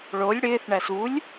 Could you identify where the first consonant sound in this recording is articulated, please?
retroflex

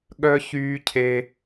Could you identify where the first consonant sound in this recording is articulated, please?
velar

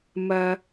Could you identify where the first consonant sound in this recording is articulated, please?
labial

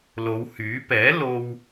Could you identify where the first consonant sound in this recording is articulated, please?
alveolar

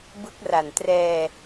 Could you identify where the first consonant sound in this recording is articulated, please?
labial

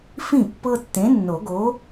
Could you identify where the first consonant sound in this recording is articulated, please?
labial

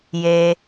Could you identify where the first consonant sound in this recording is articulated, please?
palatal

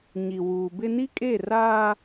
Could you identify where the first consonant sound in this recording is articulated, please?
palatal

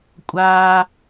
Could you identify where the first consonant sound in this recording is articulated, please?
velar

